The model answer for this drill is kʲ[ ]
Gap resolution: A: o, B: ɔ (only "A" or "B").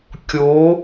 A